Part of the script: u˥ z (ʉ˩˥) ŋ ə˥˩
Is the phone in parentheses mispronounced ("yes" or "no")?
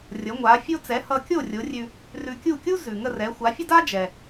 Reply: yes